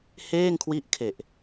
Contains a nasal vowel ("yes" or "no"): no